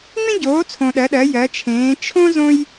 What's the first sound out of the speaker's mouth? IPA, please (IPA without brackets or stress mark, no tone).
ŋ͡m